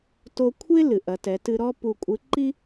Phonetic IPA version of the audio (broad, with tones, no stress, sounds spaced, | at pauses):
t o˧ kʷʰ e˥ l ɨ˩ ʔ ɐ˩˧ t ɛ˩˧ t ɨ˧ ɾ ɔ˥ p u˧ kʷʼ ɨ˧˥ ǃ i˥